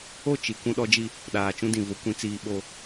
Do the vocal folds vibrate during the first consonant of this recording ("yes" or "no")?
no